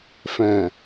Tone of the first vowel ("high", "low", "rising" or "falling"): low